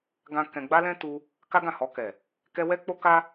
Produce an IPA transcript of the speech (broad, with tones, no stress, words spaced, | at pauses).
ɡã˦ kɛ̃˧ ɡ͡ba˦lɛ̃˦ tu˧ | ka˦ɡã˦˨hɔ˧kɛ˨ | kɛ˦ wɛ˦k͡po˦ka˦